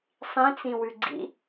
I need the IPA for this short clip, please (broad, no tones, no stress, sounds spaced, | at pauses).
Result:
sˤ ĩ t͡s ĩ w ʉ ɡ͡ǀ ḭ